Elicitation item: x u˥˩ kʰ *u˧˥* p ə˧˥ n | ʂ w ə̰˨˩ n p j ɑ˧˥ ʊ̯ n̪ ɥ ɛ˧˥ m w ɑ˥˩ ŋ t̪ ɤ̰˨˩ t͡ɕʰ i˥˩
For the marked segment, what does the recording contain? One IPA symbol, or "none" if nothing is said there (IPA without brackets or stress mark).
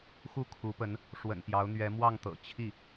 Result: u˧˥